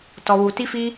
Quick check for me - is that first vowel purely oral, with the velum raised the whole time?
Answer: yes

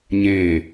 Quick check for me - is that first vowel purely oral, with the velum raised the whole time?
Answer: no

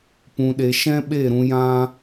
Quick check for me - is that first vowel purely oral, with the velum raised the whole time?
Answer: no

